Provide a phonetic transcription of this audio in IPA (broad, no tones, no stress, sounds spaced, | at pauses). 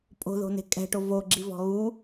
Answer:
pʼ o̤ ð o̤ n e̤ kʼ ɛ̤ ʈ o v o ɡ͡ǁ i v ɔ̤ ɣ u